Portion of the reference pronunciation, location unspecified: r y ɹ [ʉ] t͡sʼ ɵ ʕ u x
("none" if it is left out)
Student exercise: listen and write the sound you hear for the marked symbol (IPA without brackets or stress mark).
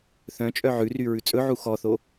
ʉ